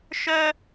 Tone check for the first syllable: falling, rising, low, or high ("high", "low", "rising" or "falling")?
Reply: high